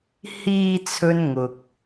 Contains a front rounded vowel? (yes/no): no